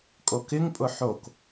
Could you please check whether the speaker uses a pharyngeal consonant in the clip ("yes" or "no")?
yes